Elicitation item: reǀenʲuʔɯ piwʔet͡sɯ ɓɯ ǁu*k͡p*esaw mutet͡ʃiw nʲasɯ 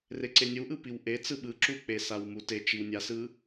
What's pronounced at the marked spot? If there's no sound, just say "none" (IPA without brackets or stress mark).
k͡p